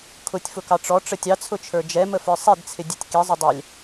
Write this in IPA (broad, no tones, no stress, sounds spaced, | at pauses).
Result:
kʰ ʊ tʲ f ʊ k ɑ ʈ͡ʂ ɔ ʈ͡ʂ ə tʲ ɑ t͡sʰ ʊ t͡ʃʰ ə˞ d͡ʒ ɛ m ə f ə˞ sˤ i d t͡sʰ ɪ dʲ ɛ tʲ k i zˤ ʊ dˤ ɛ lʲ